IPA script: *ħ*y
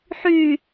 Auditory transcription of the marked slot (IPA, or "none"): ħ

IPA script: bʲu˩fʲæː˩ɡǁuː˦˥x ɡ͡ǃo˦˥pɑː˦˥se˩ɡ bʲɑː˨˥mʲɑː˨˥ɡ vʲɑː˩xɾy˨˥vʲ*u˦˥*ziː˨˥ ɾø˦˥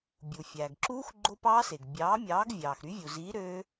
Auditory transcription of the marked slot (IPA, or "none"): u˩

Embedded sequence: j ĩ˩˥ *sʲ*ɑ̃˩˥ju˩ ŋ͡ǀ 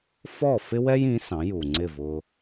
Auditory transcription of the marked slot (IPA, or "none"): s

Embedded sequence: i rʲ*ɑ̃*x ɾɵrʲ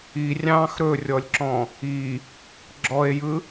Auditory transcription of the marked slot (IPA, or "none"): ɑ̃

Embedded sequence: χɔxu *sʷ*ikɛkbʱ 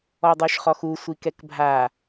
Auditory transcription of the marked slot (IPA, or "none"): sʷ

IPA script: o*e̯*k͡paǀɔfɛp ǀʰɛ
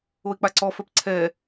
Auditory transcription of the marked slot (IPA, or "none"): e̯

